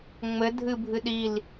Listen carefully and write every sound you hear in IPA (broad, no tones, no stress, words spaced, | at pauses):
ŋ͡mɘ dʱɨbʱɨ ɗil